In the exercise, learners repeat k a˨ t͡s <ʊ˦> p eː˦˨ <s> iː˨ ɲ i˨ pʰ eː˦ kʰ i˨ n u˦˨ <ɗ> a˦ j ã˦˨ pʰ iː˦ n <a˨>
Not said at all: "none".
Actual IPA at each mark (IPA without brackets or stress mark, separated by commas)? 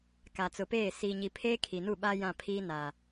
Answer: ʊ˨, s, ɓ, a˨